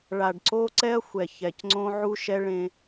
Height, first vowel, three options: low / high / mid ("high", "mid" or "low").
low